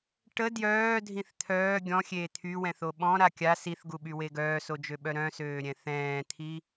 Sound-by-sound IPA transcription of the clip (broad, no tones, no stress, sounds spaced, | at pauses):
ʈ ə d j œː dʱ ĩ θ t̪ʰ œː ɡʲ ɔ̃ xʲ eː t̪ʰ y w ɛ̃ θ o ɓ ɔ̃ ɾ a kʲ a s i θ ɡ u ɓ y w e ɡ œː s o d͡ʒ ø ɓ œ ɾ œ̃ s øː ɾʲ ɛ̃ θ ɛ̃ː t̪ʰ i